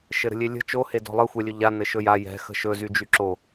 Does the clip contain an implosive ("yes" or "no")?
no